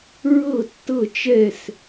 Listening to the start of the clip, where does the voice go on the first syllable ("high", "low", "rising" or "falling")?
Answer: falling